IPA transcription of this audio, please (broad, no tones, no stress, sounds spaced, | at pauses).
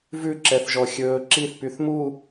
v ʉ ǁ ɛ θ ʒ ɔ xʲ ɵː ǁ i θ p y θ m u